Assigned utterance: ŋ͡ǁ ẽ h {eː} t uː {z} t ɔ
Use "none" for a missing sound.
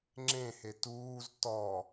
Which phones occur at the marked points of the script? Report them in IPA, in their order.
e, z

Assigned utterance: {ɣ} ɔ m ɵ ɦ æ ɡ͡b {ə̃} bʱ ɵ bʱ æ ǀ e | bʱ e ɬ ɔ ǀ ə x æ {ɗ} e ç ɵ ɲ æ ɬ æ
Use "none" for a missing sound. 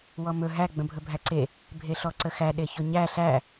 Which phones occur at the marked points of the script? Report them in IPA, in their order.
w, ə̃, ɗ

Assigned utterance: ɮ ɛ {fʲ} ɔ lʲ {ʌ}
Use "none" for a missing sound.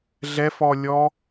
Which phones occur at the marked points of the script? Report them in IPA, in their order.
f, ɔ

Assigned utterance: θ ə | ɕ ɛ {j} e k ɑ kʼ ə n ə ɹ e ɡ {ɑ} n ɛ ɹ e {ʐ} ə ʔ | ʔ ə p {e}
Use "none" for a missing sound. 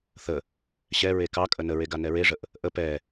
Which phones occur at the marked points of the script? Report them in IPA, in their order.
ɹ, a, ʐ, ɛ

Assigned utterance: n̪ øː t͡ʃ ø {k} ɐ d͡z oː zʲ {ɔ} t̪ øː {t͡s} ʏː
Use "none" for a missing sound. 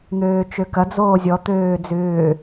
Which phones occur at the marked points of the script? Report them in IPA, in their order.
k, ɔ, d͡z

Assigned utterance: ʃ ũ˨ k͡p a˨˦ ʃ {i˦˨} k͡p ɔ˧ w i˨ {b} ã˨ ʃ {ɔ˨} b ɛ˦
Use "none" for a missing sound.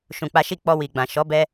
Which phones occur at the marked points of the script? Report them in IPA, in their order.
i˦˨, ɡ͡b, ɔ˨˦

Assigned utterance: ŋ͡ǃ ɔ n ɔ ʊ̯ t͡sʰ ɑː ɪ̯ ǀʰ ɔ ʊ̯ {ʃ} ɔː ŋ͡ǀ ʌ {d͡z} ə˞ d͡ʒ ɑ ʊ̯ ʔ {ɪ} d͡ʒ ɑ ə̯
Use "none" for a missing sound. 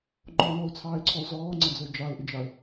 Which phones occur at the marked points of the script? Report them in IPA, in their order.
z, d͡z, ɪ

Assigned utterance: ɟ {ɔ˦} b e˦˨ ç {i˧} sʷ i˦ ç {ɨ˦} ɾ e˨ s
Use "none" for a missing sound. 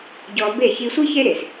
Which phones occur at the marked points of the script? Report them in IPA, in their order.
ɔ˧, i˧, e˦

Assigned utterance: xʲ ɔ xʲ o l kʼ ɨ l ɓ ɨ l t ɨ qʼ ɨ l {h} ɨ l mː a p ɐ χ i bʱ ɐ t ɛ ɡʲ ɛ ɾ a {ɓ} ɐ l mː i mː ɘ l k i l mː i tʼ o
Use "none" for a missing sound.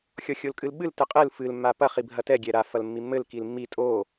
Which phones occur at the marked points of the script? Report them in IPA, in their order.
f, f

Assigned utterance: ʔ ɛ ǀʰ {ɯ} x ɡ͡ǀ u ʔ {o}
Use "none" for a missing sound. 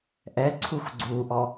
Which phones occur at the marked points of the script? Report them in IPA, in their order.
u, ɔ

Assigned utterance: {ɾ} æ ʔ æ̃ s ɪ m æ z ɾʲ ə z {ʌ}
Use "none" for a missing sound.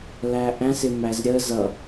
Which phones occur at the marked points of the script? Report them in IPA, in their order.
l, ʌ

